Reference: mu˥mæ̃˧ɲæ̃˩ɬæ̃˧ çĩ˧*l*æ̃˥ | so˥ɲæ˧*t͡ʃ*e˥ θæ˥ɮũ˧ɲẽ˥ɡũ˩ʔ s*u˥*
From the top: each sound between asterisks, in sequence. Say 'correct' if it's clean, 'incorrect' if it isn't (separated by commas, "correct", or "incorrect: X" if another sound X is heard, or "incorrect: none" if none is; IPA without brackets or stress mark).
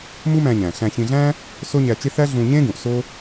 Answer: incorrect: ɮ, correct, incorrect: o˥